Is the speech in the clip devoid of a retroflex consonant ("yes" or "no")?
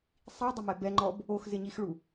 no